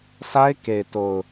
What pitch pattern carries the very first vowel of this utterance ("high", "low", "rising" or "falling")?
high